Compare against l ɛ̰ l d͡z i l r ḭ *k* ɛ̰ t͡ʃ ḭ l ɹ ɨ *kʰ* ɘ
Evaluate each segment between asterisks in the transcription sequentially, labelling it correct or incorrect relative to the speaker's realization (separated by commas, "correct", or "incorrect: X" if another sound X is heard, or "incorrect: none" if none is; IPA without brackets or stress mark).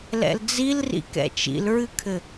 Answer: correct, correct